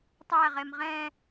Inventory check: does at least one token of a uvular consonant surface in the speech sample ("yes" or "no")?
yes